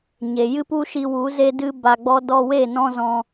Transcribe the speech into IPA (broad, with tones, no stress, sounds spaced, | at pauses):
ɲ e˨ j ɨ˦ p u˦ ʃ i˧ w u˨˦ z e˦ d ɨ˦ b a˧ ɡ͡b ɔ˦ d ɔ˧ w e˦˨ n ɔ̃˦ z ɔ̃˧